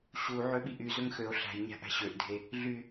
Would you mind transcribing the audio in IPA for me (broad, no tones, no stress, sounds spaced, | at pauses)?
ɕ u ʕ ø ɓ i ʔ y z ɵ ŋ x ø o̯ ɬ æ̤ j ɲ æ̤ ʔ æ̤ ɕ ø ʔ dʱ e | ɮ y